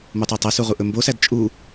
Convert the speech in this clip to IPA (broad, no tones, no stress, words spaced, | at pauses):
mutˤytˤæsu ʁuʔɵmbosæd t͡ʃʼu